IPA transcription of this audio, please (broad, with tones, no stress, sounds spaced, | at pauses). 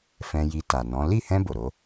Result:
f ɛ̃˧ j i˧ t a˨ n ɔ̃˨˦ l i˦˨ h ɛ̃˧ b o˨ ɾ o˨˦